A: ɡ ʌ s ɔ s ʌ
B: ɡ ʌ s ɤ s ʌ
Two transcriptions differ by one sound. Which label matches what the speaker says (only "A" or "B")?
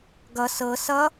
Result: B